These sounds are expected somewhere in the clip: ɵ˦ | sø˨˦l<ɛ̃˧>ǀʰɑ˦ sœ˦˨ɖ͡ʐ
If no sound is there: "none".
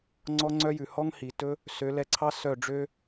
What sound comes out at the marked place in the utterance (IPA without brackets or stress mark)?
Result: ɛ˧